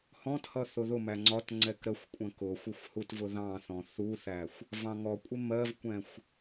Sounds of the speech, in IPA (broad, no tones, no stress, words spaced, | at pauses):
hɔ̃thʌ θʊðʊmæ ŋ͡ǀɒt ŋ͡ǀɛkɾəxʷkʷʼə̃ kʊxʷɪxʷ hutvʊðɑ̃θɔ̃ θuθæxʷ | vɑ̃ŋɔkʷʼɪ mɜvkʷɛ̃xʷ